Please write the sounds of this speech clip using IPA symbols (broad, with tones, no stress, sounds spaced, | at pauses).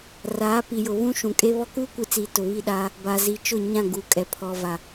r aː˨˦ p i˨ j ʊ˨ β ũ˦ ʃ ũ˨ kʼ e˦ β ɔ˦ k uː˦ kʷ i˨ t͡s iː˨ t ʊ˨ β i˦˨ ɗ aː˦ | b a˨ z i˨ t͡ʃ ʊ˦˨ ɲ ã˦˨ ɡ u˨ kʼ ɛ˨ pʰ ɔ˨ v a˨